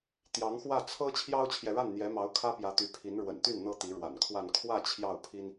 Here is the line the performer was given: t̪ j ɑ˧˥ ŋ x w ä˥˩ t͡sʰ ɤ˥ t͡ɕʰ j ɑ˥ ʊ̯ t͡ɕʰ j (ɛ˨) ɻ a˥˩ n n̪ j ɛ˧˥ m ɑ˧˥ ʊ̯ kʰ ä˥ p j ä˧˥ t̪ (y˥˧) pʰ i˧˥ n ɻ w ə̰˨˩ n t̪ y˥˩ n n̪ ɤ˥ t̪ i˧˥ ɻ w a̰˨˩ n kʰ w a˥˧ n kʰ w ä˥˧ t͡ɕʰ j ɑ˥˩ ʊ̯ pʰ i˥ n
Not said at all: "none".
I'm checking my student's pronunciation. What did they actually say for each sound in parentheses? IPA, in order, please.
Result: ɛ˨, y˧˥

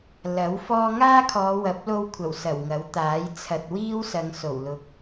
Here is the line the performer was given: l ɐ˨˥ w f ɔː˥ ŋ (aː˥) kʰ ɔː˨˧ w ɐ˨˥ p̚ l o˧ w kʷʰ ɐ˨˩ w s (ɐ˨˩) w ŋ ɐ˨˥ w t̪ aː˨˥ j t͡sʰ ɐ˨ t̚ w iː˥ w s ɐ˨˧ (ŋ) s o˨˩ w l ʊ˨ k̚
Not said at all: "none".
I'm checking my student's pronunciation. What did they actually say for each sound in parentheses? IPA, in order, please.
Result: aː˥, ɐ˨˩, ŋ

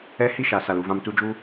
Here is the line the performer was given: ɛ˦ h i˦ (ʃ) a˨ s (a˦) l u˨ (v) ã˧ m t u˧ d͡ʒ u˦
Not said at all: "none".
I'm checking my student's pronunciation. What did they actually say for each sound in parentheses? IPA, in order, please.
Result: ʃ, a˨, v

